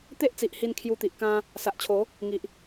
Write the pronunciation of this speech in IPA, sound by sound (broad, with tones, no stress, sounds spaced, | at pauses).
t̪ e˦ ʔ t͡s i˨ ʔ h i˧ n kʰ j u˧ t̪ i˨ ʔ k ã˦ | s a˨ ʔ t͡ɕʰ o˨˦ | ŋ i˨ ʔ